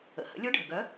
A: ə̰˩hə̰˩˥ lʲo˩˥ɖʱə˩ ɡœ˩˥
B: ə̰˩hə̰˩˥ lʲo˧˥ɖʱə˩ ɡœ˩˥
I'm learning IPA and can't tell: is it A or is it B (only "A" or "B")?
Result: B